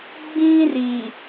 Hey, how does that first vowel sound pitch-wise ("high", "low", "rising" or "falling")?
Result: high